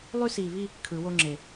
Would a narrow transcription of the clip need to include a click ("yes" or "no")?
yes